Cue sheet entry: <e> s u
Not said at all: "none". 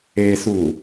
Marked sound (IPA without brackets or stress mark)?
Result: e